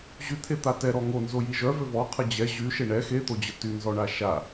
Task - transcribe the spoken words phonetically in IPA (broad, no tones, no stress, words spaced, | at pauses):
ʑyt̪ʰe t̪atɛ ɾɔŋo nzojiʒœ vøvɔqʰə d͡ʑɛ ʑy ʃeɳɛ xet̪od͡ʑə tynzɔɳa ʃa